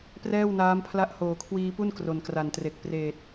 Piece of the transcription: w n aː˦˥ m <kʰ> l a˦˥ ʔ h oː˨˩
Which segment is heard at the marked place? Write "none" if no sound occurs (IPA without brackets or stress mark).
pʰ